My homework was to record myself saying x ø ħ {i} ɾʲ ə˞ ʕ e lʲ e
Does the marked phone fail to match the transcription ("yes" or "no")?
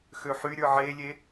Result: yes